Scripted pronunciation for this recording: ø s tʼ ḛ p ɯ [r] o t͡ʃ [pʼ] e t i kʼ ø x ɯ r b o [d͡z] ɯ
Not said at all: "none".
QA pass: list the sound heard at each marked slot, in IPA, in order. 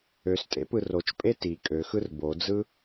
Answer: r, pʼ, d͡z

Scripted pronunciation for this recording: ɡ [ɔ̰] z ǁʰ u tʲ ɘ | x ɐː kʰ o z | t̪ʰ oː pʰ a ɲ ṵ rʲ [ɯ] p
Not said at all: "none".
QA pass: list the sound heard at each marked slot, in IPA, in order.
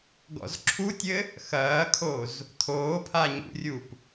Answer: ɔ̰, u

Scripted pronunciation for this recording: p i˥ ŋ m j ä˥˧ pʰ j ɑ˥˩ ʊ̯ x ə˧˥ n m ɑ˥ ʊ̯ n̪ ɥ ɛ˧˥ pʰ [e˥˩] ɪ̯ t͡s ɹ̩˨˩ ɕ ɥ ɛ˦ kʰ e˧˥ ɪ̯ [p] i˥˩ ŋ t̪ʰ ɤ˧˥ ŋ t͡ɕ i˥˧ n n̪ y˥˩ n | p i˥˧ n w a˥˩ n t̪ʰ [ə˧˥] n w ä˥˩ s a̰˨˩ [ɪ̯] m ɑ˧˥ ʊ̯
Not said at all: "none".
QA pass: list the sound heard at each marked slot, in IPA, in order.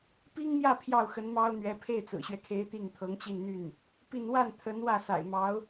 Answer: e˥˩, t̪, ə˧˥, ɪ̯

